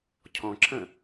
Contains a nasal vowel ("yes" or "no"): yes